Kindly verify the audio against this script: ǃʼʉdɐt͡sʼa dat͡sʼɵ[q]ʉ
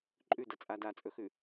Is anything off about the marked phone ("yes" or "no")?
yes